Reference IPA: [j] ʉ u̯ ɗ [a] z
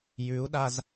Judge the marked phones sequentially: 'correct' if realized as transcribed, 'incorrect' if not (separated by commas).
correct, correct